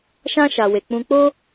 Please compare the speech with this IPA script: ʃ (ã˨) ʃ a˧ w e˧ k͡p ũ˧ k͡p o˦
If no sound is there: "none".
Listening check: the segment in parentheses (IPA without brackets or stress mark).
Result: ã˦